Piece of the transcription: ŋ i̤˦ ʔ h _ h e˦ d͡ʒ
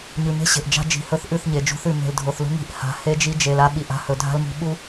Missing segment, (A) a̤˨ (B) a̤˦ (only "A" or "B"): A